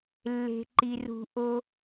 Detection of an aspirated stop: absent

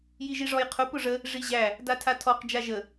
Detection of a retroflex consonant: present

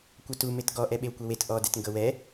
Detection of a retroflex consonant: absent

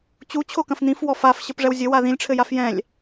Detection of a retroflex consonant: present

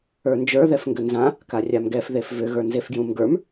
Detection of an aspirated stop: absent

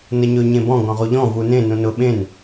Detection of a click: absent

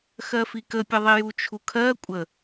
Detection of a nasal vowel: absent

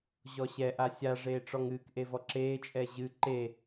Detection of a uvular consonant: absent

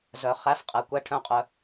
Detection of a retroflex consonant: present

